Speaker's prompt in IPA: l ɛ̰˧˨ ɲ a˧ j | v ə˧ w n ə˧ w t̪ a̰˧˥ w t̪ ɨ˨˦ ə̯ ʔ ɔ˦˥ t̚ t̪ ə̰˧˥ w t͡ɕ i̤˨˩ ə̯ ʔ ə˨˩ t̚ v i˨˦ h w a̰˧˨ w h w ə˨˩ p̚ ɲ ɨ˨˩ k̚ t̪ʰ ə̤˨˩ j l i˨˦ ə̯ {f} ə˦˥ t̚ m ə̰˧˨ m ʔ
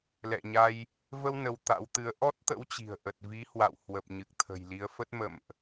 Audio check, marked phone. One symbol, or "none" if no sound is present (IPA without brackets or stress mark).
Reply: f